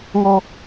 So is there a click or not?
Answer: no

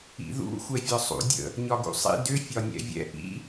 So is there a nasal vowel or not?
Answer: no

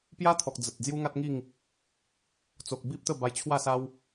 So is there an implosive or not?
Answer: no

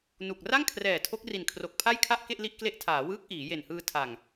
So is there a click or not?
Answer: no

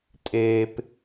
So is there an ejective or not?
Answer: yes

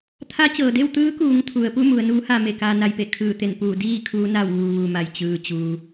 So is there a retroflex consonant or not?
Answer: no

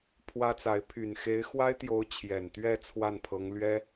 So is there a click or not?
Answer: no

